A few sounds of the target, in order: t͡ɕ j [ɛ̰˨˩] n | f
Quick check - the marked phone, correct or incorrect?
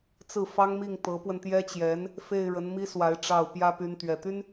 incorrect